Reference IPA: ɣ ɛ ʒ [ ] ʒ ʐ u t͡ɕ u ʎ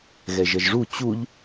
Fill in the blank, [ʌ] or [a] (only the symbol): ʌ